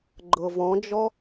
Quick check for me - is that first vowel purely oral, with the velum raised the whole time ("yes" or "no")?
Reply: yes